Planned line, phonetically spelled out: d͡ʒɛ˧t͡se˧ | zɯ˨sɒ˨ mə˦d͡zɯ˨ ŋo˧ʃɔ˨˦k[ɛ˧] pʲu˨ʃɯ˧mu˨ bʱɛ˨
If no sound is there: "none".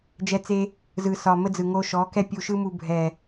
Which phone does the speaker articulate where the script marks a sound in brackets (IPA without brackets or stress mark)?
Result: ɛ˦